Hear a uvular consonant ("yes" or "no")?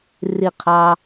yes